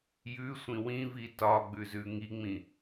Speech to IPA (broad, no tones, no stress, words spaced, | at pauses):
jʉsʷĩ wĩvi tɒɡ͡bʉzʉ ŋiŋ͡mĩ